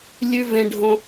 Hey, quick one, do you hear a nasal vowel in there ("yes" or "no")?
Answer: yes